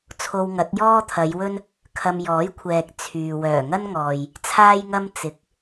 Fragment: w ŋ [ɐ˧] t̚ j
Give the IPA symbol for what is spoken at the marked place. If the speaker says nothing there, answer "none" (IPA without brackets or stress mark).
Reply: ɐ˨˥